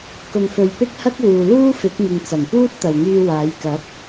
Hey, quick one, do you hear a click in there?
no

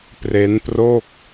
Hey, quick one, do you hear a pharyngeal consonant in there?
no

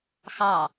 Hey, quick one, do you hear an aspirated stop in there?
no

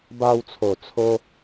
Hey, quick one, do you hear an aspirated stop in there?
yes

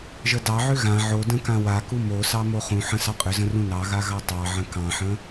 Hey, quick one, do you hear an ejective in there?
yes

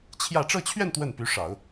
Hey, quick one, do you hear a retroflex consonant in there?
yes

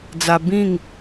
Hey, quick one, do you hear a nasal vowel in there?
yes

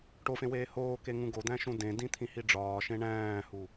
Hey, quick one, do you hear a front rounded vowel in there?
no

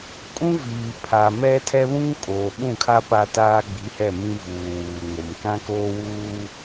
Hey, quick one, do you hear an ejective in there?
yes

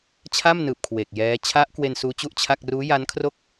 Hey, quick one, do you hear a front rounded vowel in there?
no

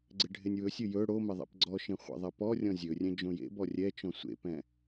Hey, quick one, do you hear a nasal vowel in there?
yes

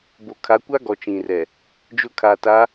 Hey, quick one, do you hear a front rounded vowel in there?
no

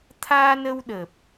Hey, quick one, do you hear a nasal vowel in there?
no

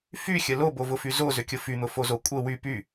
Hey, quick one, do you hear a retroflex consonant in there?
no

